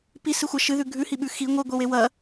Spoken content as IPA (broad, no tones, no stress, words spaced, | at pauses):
pisɨxʷa ʃɨðʉ ɡʱʉhiɓʉ xi ŋʷiɡʷe wewɐ